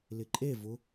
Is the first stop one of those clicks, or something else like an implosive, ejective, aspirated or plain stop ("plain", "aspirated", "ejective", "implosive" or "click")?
click